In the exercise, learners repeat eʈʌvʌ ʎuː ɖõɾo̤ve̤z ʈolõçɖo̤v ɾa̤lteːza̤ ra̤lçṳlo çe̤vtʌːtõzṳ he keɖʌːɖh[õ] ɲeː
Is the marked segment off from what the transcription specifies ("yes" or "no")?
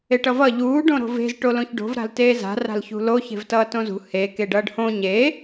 no